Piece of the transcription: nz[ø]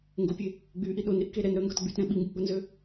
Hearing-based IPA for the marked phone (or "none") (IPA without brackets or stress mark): ø